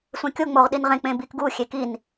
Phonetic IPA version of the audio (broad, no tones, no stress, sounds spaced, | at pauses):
sʷ ẽ kʲ o ŋ͡m o ʁ ɗ i n ʁ ẽ k͡p ẽ b i k ɡ u xʲ e k i n